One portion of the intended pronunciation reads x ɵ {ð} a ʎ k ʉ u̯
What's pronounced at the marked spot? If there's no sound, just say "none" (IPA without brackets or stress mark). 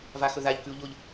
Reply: ð